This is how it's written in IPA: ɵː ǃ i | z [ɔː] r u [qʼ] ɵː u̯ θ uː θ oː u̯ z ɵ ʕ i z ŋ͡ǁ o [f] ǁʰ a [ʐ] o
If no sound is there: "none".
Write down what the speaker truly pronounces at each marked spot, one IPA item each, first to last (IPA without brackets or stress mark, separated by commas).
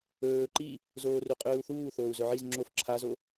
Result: oː, qʼ, f, z